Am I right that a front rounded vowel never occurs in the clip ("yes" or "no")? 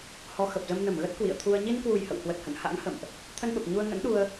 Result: yes